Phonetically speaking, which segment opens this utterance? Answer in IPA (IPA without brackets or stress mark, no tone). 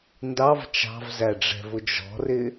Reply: n